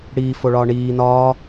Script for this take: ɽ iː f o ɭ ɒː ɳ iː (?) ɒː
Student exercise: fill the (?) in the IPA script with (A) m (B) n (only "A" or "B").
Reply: B